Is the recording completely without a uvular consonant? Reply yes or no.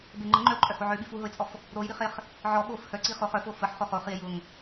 no